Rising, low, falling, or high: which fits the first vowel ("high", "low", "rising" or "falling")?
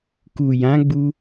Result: low